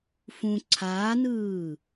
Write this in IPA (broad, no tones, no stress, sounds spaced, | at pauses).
f ũ ǀʰ aː n ɯː